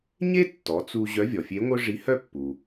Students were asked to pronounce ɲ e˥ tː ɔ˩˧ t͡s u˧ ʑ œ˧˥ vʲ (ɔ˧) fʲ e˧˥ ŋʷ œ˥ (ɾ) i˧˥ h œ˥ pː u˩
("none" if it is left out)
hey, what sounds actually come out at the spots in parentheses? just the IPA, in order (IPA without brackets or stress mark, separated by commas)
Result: ɔ˩, ʐ